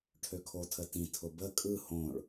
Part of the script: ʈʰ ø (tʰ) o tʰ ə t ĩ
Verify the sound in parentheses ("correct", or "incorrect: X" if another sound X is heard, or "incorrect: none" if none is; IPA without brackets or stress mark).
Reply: incorrect: kʰ